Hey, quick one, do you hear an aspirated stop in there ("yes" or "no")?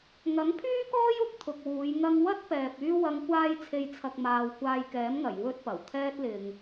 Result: yes